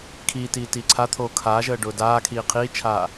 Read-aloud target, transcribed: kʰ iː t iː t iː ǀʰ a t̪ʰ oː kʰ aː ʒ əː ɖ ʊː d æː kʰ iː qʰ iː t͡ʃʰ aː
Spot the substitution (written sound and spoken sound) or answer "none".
æː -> aː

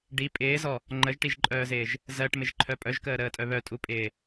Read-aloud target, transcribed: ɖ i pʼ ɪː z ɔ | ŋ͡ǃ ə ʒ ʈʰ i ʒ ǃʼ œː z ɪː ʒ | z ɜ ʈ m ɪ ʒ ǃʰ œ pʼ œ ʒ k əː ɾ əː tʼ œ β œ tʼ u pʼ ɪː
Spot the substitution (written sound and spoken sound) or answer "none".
ʈʰ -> ʈ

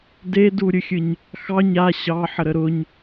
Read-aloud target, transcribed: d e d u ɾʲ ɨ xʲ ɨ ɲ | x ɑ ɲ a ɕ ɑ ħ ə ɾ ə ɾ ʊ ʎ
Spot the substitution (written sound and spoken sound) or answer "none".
ʎ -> ɲ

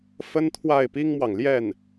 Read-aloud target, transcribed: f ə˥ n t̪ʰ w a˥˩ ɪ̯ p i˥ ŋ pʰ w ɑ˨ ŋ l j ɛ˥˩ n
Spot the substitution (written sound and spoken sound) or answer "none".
pʰ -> m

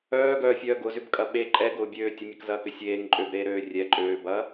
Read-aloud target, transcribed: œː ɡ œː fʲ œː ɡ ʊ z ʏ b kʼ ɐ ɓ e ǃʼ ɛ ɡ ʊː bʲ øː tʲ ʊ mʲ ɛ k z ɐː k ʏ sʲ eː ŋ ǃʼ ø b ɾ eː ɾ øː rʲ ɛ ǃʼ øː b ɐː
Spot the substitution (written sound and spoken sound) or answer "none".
none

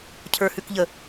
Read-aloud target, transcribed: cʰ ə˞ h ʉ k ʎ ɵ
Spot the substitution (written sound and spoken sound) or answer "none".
ɵ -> ə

